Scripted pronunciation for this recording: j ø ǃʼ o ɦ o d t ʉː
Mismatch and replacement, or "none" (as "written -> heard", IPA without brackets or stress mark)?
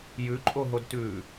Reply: ø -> ʉ